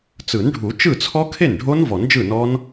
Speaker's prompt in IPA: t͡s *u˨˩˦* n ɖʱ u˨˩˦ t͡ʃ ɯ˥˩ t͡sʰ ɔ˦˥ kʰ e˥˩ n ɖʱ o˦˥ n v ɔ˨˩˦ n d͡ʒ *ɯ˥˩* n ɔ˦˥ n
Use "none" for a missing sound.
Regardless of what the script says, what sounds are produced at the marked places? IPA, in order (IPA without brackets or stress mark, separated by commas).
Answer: ɯ˨˩˦, ɯ˥˩